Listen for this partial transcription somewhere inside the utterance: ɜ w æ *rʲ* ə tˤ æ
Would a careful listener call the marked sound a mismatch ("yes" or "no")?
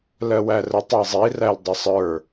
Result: yes